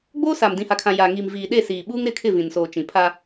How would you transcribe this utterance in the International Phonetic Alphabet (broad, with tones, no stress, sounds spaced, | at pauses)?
ɡ͡b oː˦ s a˨ m d ĩ˨ h a˨ kʰ ã˨ j a˨ ŋ iː˨ m v iː˨ ɗ e˦˨ s iː˨ ɓ uː˦ ŋ ɾ ɪ˦˨ kʰ ɪ˦˨ v ĩ˨ n s oː˨ t͡ʃ ĩ˨ pʰ a˦